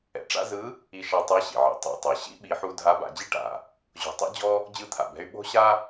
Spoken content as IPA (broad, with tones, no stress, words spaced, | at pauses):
ɛ̰˩ʈ͡ʂa̰˥ zɯ˧˥ | i˧ʃa˧ tˤa˧˥ɕḭ˩ʕḭ˩˧ tˤɛ̰˩tˤɤ˩ ɕḭ˥ɓi˩˧ħu˧ dʱa˧˥ba̰˩˧d͡ʑi˥ ʈa̰˩ | ʑo̤˧tˤḭ˥d͡ʑɔ˥ | d͡ʑɯ˧˥t̪ʰa̰˩bɛ̤˧y̯ ɓo̤˥ɕa˥